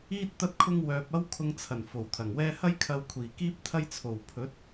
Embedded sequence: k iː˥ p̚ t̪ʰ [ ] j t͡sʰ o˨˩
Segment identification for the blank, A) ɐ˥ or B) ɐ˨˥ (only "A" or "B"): A